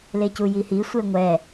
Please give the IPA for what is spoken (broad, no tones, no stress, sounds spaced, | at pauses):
l e c u j i h i sʷ e ŋʷ ɛ